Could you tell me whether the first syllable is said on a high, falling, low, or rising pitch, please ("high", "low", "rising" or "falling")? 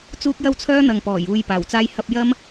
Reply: high